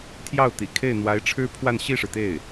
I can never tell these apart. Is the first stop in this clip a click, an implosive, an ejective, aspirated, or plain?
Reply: aspirated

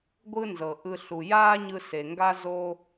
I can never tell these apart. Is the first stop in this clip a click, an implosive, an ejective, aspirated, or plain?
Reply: plain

